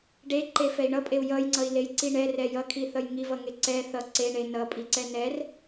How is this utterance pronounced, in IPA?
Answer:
ɖeǃefɛi̯ ɳʌpʼeu̯ jʌjŋ͡ǀʌi̯lejǀi ɳɛrɛ jʌkʰiθʌj ŋivʌŋe ǀɛ θʌ ǀeɳe nʌpʼiǀɛ nɛr

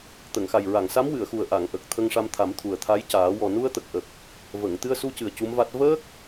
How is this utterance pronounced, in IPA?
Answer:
t̪ə˨˩˨ŋxa˨˩jɹa˨˩˨ŋsa˧˥m wɨ˨˩˨ə̯xu˨˩ə̯ ʔa˨˩˨ŋʔə˨˩k̚ t̪ʰə˧ŋʂa˧mt̪ʰa˨˩˦mt̪ʰu˨˩ə̯ t̪ʰa˧˥jcaː˨˩˦ wɔ˨˩ nu˧ə̯t̪ə˨˩k̚ʔə˨˩k̚ | və˨˩˨ŋt̪ɨ˧ə̯ su˧cɨ˨˩ə̯ cu˧˥mva˦˥t̚ vəː˦˥k̚

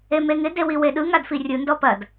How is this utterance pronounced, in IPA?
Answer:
emeŋɪ dewiweɗɯ ŋadfirʲɯ ndɔpɐd

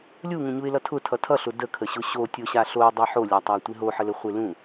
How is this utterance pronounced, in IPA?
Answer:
lʲuŋũɲuɪ̯lʌ tʰʊtʰʌ tʰʌɬʊ dəkʰəɕʊ ɕotʲoɕa ɬoɪ̯dˤʌ ħolʲatˤatʷe ɦoħələχʷe lũ

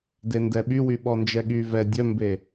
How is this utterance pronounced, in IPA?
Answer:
dendɛɓywy ɓɔnd͡ʒɛɠy vɛ dʲœmbe

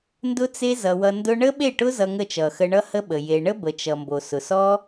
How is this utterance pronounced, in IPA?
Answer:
ndʊ˦t͡se˦zʌ˨wʌ˧ ndʊ˧ɳə˦ɓe˦˨ʈʊ˦ zʌ˧ŋə˦˨t͡ʃʌ˨ xə˧ɳʌ˦hə˦ɓə˨ je˧ ɳə˦bə˨t͡ʃʌ˨ mbo˨sʊ˨ sɔ˦

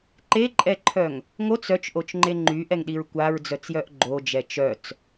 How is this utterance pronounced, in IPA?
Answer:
ǃeǃʼɛǃʰœŋ | ŋot͡s œt͡ʃʔot͡ʃŋ͡ǃe ŋ͡ǃyʔɛŋɗiɹ kʷaɹd͡zœt͡sjœʔ ɡ͡ǃod͡ʒɛ t͡ʃœt͡s

